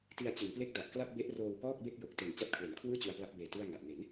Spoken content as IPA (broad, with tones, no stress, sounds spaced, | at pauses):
t i˧ a̯ t͡ɕ ɯ˩˦ ŋ p l e˥˩ k̚ d a˨˩ ʔ k l a˥˩ p̚ b e˦˥ ʔ r oː˧ w p ɔː˥˩ k̚ b e˥˩ k̚ j o˨˩ k̚ t e˨˩ n t͡ɕ a˦˥ t̚ kʰ w e˩˦ n kʰ w ɯː˥˩ t͡ɕ u˧ a̯ p l a˦˥ p̚ b eː˨˩ t u˥˩ a̯ ŋ a˨˩ ʔ n e˩˦ n